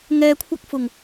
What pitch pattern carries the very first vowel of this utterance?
low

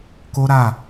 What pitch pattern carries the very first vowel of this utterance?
high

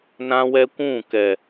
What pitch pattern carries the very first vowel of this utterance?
high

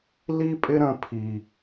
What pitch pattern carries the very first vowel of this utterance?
high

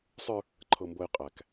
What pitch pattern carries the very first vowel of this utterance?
high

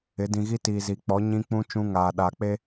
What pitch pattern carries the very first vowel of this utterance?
rising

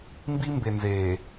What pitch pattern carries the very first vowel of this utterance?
high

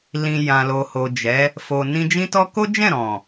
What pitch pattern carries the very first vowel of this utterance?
low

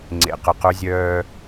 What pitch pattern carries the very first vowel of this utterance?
low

